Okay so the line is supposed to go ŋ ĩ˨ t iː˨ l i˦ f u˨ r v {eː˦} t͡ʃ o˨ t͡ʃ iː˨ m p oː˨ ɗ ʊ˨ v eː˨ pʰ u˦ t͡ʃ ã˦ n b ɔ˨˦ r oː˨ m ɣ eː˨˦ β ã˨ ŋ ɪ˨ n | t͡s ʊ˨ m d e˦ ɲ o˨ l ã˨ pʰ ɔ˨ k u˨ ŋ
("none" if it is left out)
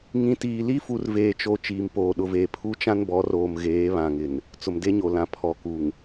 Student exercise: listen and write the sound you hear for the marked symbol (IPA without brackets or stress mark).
eː˨